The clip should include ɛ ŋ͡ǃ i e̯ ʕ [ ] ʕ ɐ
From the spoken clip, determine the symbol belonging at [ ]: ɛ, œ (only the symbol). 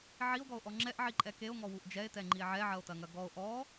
ɛ